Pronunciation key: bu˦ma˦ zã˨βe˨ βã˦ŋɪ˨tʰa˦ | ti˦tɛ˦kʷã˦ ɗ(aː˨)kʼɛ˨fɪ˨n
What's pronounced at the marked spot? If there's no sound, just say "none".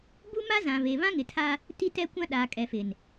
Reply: aː˨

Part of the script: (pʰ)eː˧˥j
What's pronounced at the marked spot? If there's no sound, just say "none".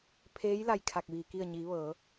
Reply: pʰ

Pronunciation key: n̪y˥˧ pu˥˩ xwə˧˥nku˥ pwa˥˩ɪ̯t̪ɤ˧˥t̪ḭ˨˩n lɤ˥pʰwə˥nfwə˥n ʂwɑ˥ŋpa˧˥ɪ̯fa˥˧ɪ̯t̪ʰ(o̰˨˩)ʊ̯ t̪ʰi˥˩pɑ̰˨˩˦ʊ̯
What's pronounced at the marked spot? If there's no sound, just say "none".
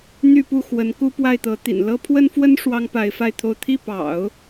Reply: o˥˧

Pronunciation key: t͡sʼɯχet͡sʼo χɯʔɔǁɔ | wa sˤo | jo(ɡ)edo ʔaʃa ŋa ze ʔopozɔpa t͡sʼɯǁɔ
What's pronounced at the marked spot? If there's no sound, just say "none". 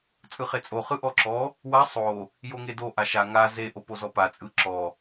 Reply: ŋ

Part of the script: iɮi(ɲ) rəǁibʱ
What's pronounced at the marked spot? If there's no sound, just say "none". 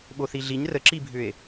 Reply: ɲ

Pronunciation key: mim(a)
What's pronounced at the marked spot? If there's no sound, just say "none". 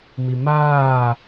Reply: aː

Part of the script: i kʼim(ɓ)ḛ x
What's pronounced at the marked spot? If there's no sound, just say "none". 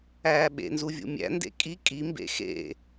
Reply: b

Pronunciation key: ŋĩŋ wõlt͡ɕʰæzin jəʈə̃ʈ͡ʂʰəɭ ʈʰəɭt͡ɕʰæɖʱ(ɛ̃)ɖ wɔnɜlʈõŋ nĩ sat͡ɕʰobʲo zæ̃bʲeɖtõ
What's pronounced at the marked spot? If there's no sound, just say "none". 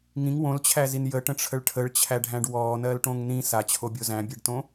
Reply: æ̃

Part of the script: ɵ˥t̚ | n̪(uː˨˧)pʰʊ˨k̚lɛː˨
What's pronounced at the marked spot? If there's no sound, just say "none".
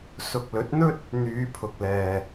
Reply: yː˨˧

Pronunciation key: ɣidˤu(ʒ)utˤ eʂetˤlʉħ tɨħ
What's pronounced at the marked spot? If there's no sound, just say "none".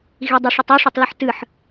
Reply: ʂ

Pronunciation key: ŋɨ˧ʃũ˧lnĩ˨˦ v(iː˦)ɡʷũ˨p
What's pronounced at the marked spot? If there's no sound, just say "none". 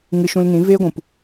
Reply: eː˦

